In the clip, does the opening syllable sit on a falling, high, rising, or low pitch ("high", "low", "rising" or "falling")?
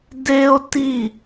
high